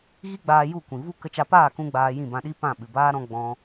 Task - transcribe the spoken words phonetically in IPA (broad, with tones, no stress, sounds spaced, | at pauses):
ɣ i˦ ɡ͡b aː˧ j u˦˨ kʷ ĩ˨ v u˦ k ə˧ t͡ʃ a˧ p aː˦˨ k ũ˧ ɡ͡b aː˧ j ĩ˦˨ b ã˧ ɗ i˦ p ã˦˨ ɓ ɨ˨ b aː˦ ɾ ɔ̃˧ ɡ͡b ɔ̃˦